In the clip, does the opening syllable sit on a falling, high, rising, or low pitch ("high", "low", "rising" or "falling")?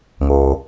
low